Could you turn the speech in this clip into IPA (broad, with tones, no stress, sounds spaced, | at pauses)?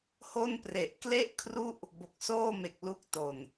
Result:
h o˥˩ n p r e˨˩ ʔ k l e˥˩ ʔ kʰ r u˥˩ ʔ | b o˨˩ k̚ s oː˥˩ m e˨˩ k̚ l u˦˥ k̚ t o˨˩ n